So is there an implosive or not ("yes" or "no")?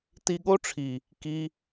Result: yes